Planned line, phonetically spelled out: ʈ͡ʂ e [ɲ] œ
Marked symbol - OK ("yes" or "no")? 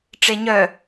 yes